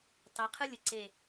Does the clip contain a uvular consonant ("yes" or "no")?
yes